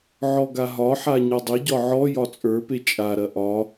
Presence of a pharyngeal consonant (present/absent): present